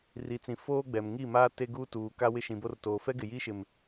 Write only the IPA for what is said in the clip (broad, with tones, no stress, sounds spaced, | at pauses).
r i˨ t͡s ĩ˨ f oː˦ ɡ͡b ɛ˨ m ŋ i˦˨ m aː˦ t e˦ ɡ uː˦ t uː˨ k a˦ w ɪ˦ ʃ ĩ˨ b o˦ r t oː˨ f ɛ˦ ɡ ɪ˨ j iː˦ ʃ ɪ˨ m